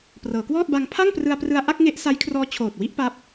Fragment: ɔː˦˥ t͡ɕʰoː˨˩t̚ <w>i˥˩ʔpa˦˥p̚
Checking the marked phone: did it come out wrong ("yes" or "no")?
no